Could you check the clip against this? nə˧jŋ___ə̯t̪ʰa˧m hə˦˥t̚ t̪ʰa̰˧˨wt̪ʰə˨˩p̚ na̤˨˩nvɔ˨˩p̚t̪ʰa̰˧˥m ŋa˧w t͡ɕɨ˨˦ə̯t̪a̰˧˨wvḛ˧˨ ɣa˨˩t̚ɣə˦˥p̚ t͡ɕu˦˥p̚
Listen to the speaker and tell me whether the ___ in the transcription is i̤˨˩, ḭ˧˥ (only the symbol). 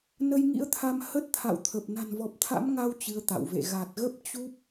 ḭ˧˥